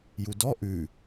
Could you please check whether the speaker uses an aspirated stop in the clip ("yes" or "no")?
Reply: no